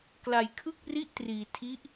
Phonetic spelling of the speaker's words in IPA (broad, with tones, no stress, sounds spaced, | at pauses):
k l a˧ j kʰ ɯ˥˩ k̚ r i˥˩ ʔ t r iː˧ tʰ i˦˥ ʔ